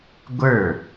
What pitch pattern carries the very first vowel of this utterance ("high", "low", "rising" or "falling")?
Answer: falling